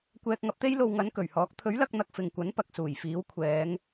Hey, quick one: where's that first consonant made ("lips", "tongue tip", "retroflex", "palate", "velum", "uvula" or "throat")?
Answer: velum